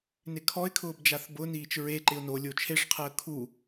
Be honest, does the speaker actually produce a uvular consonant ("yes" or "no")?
yes